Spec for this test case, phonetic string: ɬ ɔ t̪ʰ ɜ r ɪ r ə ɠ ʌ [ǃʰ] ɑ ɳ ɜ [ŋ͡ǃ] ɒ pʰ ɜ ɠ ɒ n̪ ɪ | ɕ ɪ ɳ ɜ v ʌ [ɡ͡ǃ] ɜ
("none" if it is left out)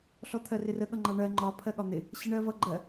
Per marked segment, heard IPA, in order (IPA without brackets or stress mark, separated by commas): ŋ͡ǃ, ŋ͡ǃ, ɡ͡ǃ